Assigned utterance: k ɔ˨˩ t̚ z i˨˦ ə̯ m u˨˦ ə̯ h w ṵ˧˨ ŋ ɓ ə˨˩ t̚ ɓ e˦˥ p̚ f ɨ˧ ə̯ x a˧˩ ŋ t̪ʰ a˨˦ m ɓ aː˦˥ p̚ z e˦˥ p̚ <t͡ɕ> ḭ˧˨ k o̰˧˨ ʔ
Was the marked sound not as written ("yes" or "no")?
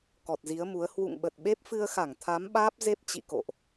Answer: no